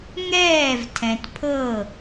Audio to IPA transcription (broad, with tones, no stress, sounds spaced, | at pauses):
ŋ ɛː˦˨ v tʰ ɛ̃˨ t pʰ ɤ˦˨